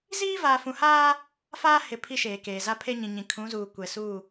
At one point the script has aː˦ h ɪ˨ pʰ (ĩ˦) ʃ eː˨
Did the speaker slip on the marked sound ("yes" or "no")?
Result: yes